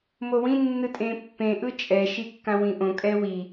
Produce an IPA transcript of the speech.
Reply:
mowĩ nːɯtʼẽpːẽ ʔɯt͡ʃʼɛ ʃikːãwĩʔõ kʼɛwi

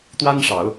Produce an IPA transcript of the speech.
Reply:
t̪wa˥nʂɑ˨˩˦ʊ̯

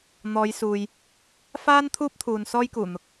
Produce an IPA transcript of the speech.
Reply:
n̪ɔː˨˧jsuː˨j | faː˥n t̪ʰuː˥p̚t̪ʰuː˨n sɔː˥jkuː˨˩n̪ʊ˨˥k̚

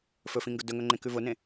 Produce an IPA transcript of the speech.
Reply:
fɵfĩŋɡʊ dɵŋɵŋ͡ǃẽkʉ vʊnẽ

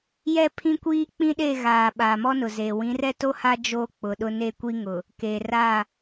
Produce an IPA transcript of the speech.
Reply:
jɛ˦pʰĩ˦kʷiː˦ k͡pĩ˦ɗe˦˨ɣaː˨ ɓaː˨mɔ˦nʊ˨zeː˨ wĩ˨˦rɛ˦to˦ha˦ d͡ʒoː˦ k͡pʊ˨ɗʊ˦ ne˦˨kʷi˦ŋʊ˨ | keː˨raː˦˨

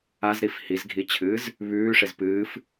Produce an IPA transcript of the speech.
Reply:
azɾif hizɡʱit͡ɕʰɨːz | βʉːʂez pɨːf

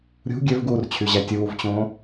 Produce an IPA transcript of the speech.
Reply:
ɾʲṳ ɡʲøvɡuːrt͡ɕʰyʑæ tʲuːvt͡ɕõː

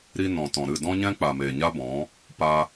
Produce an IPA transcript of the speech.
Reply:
ɾi˧ nɔ̃˨tɔ̃˨ɾɨ˦˨ dɔ̃˦ɲɛ̃˦ k͡pa˨meː˨ɲa˦bɔ̃˨˦ | pa˧

